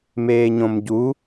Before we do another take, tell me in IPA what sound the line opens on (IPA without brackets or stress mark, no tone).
m